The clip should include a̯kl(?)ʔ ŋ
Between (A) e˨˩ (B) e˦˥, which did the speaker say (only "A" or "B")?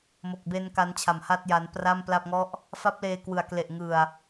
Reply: A